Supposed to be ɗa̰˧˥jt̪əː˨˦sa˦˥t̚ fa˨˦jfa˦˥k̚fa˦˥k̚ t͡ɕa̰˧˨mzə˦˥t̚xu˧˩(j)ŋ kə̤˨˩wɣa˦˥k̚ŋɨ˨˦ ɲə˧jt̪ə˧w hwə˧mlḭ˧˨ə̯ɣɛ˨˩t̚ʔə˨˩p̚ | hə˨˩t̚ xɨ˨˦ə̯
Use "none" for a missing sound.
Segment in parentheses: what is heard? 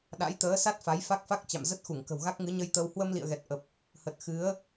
none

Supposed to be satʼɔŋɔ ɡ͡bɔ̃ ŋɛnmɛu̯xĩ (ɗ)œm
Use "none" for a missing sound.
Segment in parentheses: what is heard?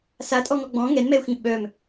ɓ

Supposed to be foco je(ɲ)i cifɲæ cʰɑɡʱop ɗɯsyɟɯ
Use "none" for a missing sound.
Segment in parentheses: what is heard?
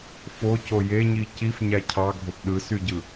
ɲ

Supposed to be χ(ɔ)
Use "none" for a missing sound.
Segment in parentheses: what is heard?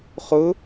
ʊ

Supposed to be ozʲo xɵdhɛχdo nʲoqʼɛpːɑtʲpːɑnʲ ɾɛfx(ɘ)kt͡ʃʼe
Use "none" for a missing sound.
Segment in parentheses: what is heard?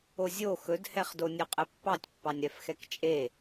ɛ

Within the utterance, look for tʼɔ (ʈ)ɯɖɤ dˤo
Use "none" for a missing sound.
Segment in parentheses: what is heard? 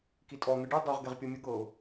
n̪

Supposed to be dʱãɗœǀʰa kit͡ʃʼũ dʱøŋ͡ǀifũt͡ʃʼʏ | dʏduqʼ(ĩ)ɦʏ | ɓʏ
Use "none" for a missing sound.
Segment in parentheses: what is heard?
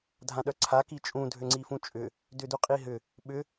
i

